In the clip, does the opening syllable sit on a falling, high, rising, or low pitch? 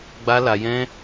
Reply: high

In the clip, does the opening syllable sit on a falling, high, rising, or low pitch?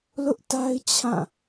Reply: high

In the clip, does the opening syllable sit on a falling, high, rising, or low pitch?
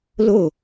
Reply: falling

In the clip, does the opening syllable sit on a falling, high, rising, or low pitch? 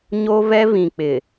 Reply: high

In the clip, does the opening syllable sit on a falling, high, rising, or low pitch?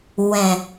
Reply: low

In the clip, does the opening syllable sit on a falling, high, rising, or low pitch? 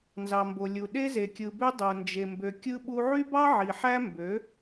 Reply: low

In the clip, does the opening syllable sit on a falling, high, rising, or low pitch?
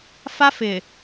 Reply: high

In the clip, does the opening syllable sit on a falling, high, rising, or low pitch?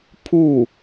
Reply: falling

